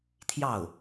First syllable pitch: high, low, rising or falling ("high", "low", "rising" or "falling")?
falling